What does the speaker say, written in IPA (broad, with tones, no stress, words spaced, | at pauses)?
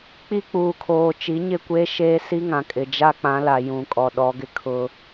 k͡pi˦k͡puː˨kʰoː˨ t͡ʃi˨˦ɲɪ˦˨ kʷeː˦ʃeː˦si˦ŋã˨ kʼɪ˨d͡ʒa˦k͡pã˨˦la˨ jũ˨ kʼɔ˨ɗɔ˨˦ɡɪ˦ kʰʊ˦